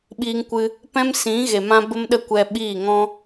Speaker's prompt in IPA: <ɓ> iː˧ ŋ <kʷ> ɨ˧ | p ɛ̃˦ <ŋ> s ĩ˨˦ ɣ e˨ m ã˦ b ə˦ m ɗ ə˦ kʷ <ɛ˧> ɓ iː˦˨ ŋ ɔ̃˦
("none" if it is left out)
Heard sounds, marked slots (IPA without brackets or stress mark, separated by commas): ɓ, kʷ, m, ɛ˧